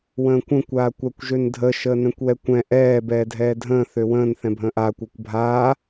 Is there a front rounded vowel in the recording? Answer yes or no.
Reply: yes